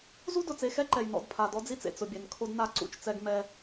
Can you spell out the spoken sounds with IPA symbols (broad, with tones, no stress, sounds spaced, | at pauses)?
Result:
z u˦ d ʊ˨ t͡s e˨ x ɛ˦ ǃ ɛ˨ j n ɔ̰˦˨ d pʰ a˨ d ɔ˦ d͡z i˦ t͡s ḛ˨ t͡s ʊ˨ bʲ ɛ˨ n kʰ o˦ d n a˦ ǀ ṵ˦˨ t͡ʃ t͡s ɛ˦ ɡ m ɛ˦